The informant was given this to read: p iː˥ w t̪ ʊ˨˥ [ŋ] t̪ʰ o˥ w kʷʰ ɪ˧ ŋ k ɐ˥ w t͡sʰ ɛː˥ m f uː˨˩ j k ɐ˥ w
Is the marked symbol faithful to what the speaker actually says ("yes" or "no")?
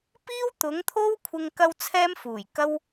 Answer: yes